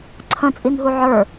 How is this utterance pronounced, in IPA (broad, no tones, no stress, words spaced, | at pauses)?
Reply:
ǀʰə̃t͡sʼinɦu ʕə˞